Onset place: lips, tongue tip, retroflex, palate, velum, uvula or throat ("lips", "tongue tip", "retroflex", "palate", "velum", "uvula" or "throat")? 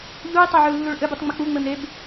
palate